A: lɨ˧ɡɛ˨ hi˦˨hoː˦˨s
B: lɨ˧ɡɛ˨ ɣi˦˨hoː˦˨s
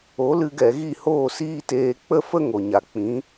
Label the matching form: B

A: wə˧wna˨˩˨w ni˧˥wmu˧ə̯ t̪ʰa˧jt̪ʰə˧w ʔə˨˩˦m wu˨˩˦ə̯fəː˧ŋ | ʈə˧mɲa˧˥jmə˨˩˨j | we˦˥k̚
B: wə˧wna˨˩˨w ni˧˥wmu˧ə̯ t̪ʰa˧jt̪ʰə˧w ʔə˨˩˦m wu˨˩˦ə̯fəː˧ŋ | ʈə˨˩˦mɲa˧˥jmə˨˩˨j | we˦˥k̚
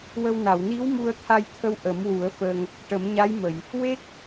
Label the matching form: B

